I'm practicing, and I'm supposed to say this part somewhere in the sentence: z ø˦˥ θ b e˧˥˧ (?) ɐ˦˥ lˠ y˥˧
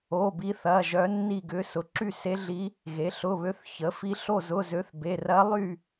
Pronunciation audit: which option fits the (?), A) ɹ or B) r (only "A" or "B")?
B